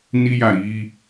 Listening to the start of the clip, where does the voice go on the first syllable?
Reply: high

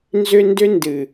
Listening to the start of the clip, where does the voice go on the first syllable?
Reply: high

